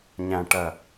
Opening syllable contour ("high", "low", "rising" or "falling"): low